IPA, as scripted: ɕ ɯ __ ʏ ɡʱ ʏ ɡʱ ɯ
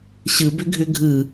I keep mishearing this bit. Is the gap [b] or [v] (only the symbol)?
b